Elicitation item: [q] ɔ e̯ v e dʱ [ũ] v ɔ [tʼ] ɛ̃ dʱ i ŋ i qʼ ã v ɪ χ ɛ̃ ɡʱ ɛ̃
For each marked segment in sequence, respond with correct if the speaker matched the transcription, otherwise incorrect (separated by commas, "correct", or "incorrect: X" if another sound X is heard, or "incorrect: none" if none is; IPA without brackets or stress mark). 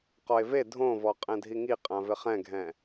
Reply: correct, incorrect: õ, incorrect: qʼ